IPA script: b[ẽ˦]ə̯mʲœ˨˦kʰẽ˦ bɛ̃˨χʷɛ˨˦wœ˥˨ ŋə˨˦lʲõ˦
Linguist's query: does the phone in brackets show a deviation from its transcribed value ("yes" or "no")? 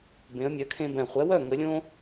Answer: yes